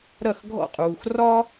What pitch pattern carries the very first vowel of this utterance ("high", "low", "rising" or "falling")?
falling